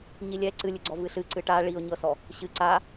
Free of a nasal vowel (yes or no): yes